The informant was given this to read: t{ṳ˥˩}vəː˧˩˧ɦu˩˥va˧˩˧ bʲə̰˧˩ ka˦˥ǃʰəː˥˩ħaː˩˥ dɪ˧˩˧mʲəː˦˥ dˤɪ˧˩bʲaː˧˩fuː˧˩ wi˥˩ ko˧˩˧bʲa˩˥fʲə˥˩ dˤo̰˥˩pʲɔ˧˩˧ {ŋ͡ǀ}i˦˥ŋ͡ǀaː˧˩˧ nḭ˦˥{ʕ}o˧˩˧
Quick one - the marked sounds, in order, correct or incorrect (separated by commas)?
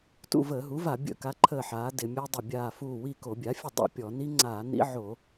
incorrect, incorrect, correct